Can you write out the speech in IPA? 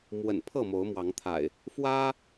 m w ə̰˨˩ n pʰ ɤ˥˨ m o˨˦ ʊ̯ m w ɑ˨˦ ŋ t̪ʰ a̰˨˩ ɪ̯ | f w ä˦

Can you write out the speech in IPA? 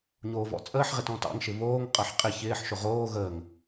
ɲ oː v ɔ̰ t͡sʼ əː ħ ʁ e t ɔ̃ t ɑ̰ ŋ ʃ ɪ β oː ŋ qʼ ʌ ħ qʼ ɪ ç ɪː ħ ʃ ʊ ʁ oː ɣ əː ŋ

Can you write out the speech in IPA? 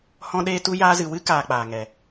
h ɔ̃˦ ɗ eː˦ t u˦ j aː˧ z ɨ˨ w ɨ˦ k aː˧ k͡p aː˨ ŋ ɛ˨

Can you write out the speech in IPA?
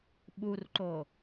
ɓ u r ǃ o

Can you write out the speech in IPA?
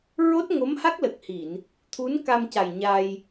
ɹ o˦˥ t̚ ŋ o˧˥ m h a˦˥ k̚ l ə˨˩ k̚ h i˨˩˨ n | t̪ʰ u˧˥ n k a˧ m c a˨˩ j ɲ a˧ j

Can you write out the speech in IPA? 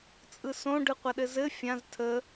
t͡sʼ ɯ s õ ɖ ɯ qʷ a ɗ ɘ z ɘ fʲ ã z tʰ ə

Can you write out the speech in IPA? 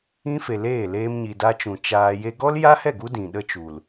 ĩ˦ f e˨ l eː˦˨ l eː˧ m ɲ i˨ d a˧ t͡ʃ ũ˨ t͡ʃ aː˧ j e˧ ɡ ɔ˦ l j a˦ h ɛ˦˨ ɡ u˦ d ĩ˨ ɗ ə˦ t͡ʃ u˨ l

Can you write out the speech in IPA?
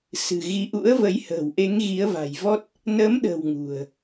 s ɨ̤˨˩ ɣ i˨˦ ʔ ṵ˧˥ ə̯ v ə˨˦ j h ə̤ː˨˩ w ʔ e˨˦ ŋ ɣ i˨˦ ə̯ v a̤˨˩ j v ɔ˦˥ t̚ | n ə˨˦ m ɗ ə̤˨˩ w ŋ ṳ˨˩ ə̯

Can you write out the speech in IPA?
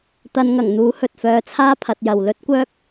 t̪ ɐ˨˧ n ŋ ɐ˨˩ ŋ n̪ uː˨˥ h ɵ˨ t̚ f œː˧ t͡sʰ aː˥ pʰ ɐ˨˥ t̚ j ɐ˨ w l ɵ˥ t̚ kʷ œː˥ k̚

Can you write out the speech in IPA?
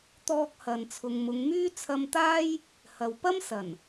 t̪ ɔː˧ k̚ h ɐ˨ n t͡sʰ ʊ˨ ŋ m ʊ˨˧ ŋ m yː˥ t͡sʰ ɐ˧ m t̪ aː˥ j | h ɐ˨ w p ɐ˥ m s ɐ˨˩ n

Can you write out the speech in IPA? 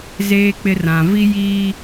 z eː˦ k͡p ɪ˦ r ã˨ v i˦ j iː˦

